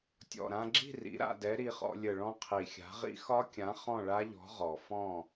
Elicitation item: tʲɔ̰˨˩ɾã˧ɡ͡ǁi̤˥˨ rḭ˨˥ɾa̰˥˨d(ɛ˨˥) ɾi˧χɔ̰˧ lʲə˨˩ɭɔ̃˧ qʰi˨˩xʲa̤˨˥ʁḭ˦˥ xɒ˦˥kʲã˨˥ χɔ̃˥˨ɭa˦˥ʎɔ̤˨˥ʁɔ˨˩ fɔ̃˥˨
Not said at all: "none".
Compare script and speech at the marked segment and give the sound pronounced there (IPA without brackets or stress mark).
ɛ˨˥